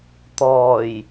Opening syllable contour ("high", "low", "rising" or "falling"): low